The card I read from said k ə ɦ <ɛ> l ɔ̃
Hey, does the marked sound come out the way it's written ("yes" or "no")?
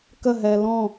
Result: yes